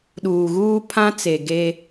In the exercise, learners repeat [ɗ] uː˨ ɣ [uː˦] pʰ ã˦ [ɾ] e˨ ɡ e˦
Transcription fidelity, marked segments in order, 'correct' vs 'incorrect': correct, correct, incorrect

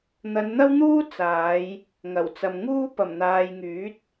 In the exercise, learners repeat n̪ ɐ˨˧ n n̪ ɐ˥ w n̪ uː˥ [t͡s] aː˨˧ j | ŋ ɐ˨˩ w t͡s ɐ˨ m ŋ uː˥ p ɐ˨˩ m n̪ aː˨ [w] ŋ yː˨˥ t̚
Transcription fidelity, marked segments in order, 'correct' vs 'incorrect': correct, incorrect

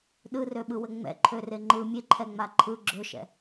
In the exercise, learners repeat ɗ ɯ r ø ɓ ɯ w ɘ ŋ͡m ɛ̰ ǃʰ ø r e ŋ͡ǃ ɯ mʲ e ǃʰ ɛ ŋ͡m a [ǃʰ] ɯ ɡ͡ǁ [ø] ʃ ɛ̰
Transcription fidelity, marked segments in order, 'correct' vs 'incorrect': correct, correct

